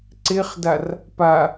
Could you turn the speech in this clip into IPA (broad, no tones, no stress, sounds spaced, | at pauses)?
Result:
ǀ e χ d a r | p a